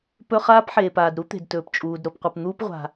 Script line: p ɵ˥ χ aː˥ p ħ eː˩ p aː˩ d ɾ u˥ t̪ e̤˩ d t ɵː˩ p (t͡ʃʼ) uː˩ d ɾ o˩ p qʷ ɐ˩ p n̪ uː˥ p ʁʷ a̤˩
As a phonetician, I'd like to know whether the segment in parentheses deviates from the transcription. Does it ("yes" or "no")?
no